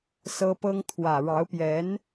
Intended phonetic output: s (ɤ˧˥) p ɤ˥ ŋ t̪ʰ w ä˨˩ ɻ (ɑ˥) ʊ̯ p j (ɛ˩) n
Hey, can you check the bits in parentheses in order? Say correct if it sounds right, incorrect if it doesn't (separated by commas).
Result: incorrect, incorrect, incorrect